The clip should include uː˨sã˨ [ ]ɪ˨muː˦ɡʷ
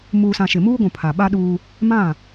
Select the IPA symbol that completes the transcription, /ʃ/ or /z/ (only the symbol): ʃ